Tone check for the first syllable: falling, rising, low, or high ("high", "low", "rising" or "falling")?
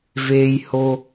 low